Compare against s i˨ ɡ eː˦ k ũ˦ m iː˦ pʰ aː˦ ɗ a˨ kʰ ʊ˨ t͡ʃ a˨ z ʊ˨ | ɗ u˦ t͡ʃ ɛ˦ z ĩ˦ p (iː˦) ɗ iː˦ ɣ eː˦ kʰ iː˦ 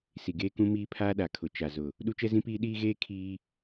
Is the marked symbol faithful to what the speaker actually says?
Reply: yes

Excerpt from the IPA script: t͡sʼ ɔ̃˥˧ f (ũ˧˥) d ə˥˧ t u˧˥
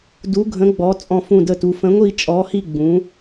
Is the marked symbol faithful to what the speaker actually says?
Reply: no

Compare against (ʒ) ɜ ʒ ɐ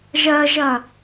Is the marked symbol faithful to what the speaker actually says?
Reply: yes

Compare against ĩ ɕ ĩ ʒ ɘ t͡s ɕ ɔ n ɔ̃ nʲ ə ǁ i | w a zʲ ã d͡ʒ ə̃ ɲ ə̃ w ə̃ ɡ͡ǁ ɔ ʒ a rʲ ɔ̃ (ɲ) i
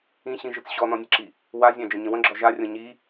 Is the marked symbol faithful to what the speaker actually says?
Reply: yes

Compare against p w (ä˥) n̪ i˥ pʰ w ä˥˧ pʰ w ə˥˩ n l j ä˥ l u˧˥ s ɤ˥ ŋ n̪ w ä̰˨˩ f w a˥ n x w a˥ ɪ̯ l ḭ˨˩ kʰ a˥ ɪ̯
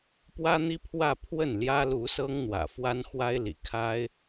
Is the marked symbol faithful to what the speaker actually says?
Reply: yes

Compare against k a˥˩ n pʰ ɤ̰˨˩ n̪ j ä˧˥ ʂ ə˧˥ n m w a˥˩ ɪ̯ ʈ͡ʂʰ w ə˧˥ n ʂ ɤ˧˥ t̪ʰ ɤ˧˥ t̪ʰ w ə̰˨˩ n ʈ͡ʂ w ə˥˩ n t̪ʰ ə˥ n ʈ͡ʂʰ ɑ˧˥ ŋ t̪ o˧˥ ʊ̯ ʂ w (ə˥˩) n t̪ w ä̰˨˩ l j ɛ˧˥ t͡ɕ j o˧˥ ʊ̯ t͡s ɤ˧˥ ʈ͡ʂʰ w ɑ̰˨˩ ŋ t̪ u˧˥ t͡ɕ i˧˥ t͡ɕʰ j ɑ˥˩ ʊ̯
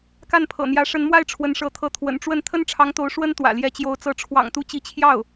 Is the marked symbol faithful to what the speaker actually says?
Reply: no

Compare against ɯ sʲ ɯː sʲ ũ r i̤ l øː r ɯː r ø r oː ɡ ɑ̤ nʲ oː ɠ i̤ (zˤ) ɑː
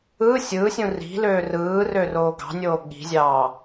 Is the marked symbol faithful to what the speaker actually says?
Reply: no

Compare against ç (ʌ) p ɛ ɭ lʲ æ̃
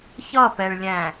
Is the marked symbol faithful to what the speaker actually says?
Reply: yes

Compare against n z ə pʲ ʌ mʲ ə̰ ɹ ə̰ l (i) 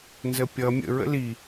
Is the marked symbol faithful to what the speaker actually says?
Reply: yes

